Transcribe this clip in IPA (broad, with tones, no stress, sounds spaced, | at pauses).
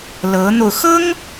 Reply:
l ɤ˧˥ n̪ o˧ ʊ̯ x ɤ˥ ŋ